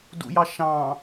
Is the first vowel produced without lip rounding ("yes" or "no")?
no